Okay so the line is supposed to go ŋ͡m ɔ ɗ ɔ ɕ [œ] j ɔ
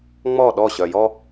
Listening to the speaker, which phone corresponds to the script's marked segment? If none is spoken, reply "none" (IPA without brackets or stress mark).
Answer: œ